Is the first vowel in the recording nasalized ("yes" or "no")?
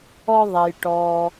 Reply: no